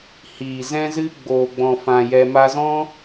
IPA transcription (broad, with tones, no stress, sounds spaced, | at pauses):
h iː˨ z ɛ̃˦ z ɨ˦ ɡ͡b oː˨ ɡ͡b ɔ̃˨ f ã˨ j ɛ˧ m a˧ z ɔ̃˦